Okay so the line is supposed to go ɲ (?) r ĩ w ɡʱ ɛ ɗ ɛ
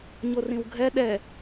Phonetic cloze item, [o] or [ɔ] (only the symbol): o